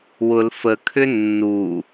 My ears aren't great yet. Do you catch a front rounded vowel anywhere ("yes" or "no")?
yes